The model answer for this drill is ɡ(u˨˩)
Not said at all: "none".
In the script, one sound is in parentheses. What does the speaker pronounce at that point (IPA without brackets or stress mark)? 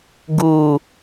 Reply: u˨˩